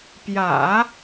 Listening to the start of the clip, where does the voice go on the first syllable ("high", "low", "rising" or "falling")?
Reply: low